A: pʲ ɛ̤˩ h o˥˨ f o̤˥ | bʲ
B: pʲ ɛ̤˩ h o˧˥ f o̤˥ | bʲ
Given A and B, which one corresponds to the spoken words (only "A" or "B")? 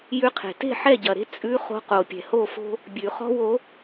A